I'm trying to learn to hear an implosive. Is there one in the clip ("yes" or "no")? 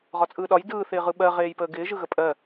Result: yes